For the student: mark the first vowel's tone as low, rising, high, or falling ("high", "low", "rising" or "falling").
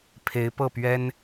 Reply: rising